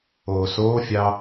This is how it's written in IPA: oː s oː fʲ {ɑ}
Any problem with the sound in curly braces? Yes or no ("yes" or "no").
no